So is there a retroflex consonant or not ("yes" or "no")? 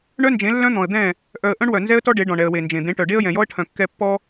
yes